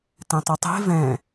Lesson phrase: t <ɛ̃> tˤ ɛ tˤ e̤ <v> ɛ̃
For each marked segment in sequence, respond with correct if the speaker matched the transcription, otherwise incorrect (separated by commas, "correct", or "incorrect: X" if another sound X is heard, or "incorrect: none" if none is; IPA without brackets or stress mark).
correct, correct